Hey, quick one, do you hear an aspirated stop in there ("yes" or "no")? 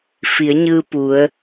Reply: no